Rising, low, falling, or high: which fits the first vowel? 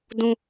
high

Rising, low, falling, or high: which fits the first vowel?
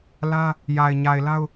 high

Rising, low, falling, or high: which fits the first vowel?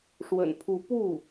low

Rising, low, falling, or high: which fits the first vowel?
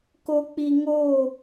low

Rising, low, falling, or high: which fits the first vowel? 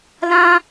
high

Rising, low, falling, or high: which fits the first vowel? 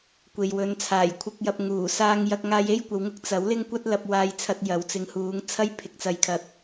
low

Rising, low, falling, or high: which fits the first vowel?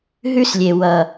high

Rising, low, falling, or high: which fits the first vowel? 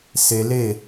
high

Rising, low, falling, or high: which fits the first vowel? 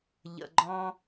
low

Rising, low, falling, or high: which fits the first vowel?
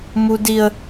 high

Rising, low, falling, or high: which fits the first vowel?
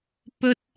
high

